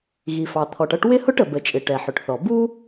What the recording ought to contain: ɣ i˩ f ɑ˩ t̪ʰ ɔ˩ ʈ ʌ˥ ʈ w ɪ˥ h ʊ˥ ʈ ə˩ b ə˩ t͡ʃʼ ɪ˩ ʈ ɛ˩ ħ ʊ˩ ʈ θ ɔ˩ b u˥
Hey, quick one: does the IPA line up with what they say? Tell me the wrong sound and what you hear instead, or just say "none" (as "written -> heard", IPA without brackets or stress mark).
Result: none